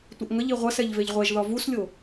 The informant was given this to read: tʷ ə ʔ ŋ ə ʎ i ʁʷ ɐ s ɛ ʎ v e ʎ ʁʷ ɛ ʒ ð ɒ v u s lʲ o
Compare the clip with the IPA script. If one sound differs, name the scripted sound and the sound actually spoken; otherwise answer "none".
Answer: none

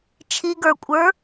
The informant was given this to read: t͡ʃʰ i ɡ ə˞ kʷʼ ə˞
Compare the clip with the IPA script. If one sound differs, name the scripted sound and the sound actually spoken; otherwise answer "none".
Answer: none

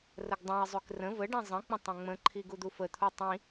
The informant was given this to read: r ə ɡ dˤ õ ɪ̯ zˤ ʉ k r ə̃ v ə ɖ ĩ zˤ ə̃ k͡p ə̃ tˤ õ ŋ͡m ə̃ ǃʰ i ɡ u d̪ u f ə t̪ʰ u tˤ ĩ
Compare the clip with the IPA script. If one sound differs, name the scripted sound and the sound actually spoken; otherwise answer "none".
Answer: none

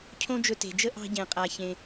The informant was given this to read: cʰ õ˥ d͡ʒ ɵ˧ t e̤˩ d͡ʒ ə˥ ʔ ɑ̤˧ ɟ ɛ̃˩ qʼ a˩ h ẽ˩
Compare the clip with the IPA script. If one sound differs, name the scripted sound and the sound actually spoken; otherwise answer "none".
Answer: h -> ç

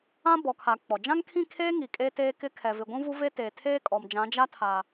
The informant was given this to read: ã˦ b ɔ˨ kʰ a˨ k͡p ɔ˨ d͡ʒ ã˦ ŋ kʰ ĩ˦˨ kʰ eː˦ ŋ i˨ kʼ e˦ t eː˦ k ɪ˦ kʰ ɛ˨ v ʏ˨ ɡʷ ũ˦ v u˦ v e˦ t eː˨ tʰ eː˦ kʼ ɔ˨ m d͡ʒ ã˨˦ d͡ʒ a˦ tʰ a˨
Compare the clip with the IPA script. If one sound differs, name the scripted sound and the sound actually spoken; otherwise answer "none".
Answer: ʏ˨ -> ɪ˨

